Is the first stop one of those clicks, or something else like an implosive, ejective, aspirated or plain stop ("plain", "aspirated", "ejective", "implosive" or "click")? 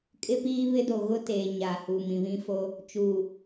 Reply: ejective